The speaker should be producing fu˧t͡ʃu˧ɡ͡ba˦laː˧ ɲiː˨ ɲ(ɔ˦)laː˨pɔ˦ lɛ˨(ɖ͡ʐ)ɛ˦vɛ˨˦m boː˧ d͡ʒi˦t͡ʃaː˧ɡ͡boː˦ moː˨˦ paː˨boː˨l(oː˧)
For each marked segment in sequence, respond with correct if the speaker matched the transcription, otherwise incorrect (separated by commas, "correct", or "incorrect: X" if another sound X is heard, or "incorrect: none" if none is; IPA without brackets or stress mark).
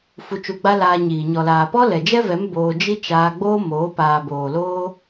incorrect: ɔ˨, incorrect: d͡ʒ, correct